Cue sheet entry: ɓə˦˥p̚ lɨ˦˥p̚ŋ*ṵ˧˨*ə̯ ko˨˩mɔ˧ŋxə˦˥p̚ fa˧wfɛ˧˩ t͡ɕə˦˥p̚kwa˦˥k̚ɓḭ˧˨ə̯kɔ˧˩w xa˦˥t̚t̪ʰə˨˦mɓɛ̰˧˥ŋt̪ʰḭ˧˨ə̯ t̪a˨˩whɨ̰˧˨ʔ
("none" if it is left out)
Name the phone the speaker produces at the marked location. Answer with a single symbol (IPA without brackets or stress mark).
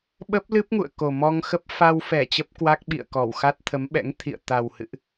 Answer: ṵ˧˨